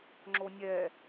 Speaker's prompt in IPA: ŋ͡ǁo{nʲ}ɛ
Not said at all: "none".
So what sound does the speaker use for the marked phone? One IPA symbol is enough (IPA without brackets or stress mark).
nʲ